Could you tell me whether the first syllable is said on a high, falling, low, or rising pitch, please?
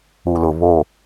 low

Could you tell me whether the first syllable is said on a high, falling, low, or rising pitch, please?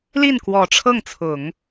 falling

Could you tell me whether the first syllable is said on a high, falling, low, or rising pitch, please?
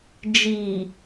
low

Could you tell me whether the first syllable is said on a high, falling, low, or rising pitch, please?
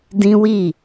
high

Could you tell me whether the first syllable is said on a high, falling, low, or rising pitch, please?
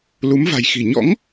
rising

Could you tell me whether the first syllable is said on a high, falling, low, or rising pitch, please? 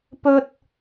high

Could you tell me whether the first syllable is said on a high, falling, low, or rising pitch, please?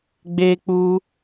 high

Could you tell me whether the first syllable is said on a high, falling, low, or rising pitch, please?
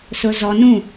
low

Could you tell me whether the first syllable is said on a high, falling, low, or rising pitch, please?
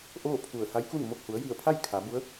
falling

